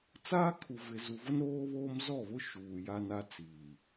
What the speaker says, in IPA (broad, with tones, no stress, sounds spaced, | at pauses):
t͡s aː˦ kʰ u˨ v ɪ˨ z u˨ v ʊ˦ n ɾ oː˦ β oː˦ m z ɔ˦˨ β ʊ˦ ʃ uː˨ j a˦ n a˦ t͡s iː˨